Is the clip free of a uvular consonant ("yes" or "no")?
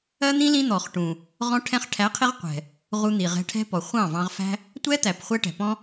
no